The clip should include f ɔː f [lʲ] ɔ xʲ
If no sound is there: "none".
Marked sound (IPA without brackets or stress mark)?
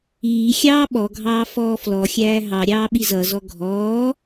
l